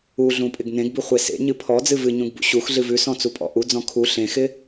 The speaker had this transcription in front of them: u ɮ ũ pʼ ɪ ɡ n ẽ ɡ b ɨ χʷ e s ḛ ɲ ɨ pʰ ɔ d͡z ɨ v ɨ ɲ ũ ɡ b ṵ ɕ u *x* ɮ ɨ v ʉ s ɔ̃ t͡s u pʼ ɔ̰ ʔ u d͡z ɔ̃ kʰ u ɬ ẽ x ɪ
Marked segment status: correct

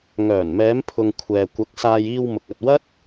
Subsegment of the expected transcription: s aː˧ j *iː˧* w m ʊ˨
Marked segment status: correct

